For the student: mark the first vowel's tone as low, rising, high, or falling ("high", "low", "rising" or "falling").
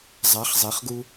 rising